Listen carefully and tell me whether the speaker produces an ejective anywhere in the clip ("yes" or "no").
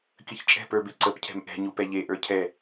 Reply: yes